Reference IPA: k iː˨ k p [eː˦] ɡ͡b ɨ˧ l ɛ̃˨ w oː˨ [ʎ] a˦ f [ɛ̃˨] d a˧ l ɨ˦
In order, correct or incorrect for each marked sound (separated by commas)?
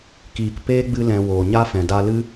correct, incorrect, correct